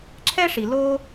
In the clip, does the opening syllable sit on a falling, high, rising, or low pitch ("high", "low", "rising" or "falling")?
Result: high